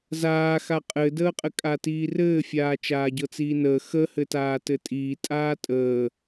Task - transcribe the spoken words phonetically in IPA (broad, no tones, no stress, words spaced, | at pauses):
zaːxa qʼɘdəːqʼɘkʼa tiːrɘːfʲaː t͡ʃaːɟɤt͡siːnəː xə hɘtaːtɘtʼiː tʼaːtʼəː